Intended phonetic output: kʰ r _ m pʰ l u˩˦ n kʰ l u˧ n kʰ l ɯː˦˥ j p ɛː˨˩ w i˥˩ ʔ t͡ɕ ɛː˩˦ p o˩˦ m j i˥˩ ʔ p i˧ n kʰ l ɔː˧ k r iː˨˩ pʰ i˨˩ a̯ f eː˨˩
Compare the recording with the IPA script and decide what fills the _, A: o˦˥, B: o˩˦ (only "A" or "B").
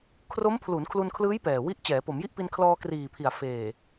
A